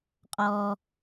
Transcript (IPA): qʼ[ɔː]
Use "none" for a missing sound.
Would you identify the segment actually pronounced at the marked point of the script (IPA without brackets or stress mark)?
ɔː